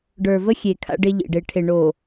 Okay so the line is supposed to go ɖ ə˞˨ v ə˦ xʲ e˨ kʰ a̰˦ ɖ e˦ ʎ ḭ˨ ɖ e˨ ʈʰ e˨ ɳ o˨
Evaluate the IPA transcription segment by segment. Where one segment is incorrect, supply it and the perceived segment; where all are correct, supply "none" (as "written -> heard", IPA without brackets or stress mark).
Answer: none